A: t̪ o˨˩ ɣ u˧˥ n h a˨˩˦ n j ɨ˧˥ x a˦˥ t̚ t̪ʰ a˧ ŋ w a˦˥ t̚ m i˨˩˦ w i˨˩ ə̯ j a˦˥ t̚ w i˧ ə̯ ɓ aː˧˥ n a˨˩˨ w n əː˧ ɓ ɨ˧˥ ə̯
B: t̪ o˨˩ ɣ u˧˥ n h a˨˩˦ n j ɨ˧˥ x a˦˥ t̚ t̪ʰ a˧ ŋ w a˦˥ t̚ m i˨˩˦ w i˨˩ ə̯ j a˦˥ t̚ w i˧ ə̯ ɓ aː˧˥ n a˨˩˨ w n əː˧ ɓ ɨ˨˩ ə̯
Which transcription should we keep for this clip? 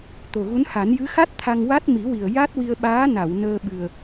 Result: B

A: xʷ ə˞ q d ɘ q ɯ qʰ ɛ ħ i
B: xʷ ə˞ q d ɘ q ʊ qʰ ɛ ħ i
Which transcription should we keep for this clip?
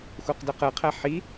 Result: A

